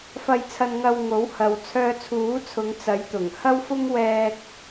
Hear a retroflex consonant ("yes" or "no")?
no